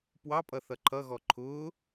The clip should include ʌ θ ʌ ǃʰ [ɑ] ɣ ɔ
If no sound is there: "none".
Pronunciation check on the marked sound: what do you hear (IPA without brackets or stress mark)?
ʌ